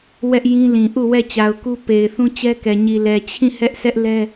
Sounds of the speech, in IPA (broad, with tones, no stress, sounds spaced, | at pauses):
w ɛ˦ ʔ j ĩ˦ l ĩ˨ ʔ u˦˨ w ɛ˦˨ t͡ɕ a˨ ʊ̯ k u˦ p e˨ ɪ̯ θ ũ˦ t͡ɕ ɛ˦ k ɛ˨ ɲ i˨ l ɛ˨ t͡ɕʰ ĩ˦˨ h ɛ˦ ʔ sʰ ɛ˦ ʔ l ɛ˦